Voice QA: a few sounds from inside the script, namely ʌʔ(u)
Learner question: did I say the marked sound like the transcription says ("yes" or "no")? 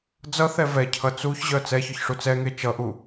yes